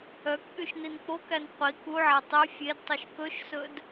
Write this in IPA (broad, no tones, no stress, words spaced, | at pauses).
œkɓyʃ nink͡pokæn qʷi kuʕæ tˤy fʲedtˤʉʃ kɵʃsɵd